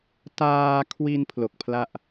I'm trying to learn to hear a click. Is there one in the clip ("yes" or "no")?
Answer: no